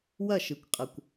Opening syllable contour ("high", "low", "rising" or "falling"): falling